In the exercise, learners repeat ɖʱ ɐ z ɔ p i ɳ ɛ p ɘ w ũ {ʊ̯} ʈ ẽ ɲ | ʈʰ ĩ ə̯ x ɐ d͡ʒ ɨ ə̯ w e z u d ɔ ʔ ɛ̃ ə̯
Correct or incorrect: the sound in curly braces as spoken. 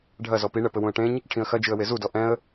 incorrect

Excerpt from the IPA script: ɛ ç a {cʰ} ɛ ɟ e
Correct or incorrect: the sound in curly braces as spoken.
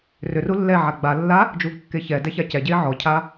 incorrect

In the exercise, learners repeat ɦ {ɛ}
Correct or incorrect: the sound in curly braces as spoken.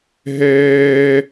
incorrect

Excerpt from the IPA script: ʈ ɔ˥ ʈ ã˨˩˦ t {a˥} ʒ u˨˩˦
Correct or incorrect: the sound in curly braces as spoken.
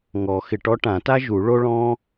correct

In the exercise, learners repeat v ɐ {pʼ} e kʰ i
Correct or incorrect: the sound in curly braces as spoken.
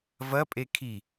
correct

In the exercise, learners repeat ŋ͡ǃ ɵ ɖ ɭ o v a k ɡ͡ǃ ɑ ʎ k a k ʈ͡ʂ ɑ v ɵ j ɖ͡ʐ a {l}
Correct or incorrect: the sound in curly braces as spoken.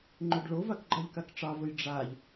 incorrect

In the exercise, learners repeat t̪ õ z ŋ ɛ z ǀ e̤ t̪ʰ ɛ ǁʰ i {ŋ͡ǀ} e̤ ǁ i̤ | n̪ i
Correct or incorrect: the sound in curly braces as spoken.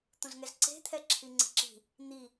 correct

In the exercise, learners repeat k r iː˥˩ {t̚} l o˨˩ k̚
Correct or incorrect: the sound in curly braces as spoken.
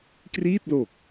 correct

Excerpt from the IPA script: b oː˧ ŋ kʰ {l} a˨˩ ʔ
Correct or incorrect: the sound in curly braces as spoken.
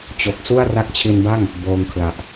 correct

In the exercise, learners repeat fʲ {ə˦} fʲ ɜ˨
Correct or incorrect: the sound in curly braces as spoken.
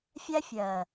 incorrect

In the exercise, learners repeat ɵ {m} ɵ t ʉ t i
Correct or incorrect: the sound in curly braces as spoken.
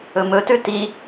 correct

